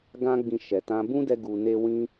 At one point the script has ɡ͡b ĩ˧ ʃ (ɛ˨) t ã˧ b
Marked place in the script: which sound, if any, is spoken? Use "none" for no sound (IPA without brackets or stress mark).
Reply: ɛ˨